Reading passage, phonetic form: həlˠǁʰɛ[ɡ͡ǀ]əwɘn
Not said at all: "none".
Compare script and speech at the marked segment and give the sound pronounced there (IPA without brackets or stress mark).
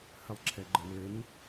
ɡ͡ǃ